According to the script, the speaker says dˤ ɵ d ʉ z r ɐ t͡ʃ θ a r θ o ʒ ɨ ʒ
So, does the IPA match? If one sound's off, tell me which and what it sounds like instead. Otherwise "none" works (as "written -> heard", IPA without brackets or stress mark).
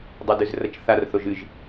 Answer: none